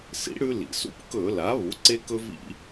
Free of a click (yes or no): no